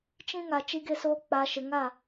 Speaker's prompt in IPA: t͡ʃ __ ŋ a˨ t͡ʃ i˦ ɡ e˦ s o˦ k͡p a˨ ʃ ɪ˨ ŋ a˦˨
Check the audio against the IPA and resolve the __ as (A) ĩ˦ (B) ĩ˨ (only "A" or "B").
A